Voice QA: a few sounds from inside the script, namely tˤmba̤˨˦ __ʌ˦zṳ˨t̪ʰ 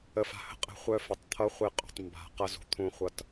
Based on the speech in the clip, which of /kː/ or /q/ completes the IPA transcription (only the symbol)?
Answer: q